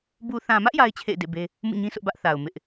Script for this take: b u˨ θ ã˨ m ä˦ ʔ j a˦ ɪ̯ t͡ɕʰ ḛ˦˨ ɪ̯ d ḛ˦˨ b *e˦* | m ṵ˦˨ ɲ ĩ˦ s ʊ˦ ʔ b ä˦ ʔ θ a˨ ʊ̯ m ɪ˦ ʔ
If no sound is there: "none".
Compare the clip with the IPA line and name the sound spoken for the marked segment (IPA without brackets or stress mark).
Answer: e˦